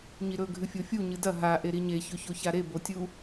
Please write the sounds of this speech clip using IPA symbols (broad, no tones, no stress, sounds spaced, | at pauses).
ɲ i ɾ ɵ ɡʱ ɨ fʲ o fʲ u ɲ ɨ d ɐ ɦ a ʔ e ɾ i ɲ e ç ɵ ç o ç a ɾ e b o tʲ u